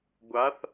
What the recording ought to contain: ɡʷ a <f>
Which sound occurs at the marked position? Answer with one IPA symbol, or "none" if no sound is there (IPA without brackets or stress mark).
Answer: θ